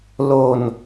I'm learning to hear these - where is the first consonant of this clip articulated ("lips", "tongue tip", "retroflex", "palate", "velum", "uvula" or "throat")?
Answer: tongue tip